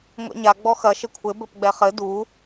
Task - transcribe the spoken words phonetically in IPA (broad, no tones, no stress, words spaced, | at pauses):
ŋʷɛ̰ɲa ɡ͡bɔxɐ ʃɘkʷʰɘ bɘpɡ͡bɛχɘ du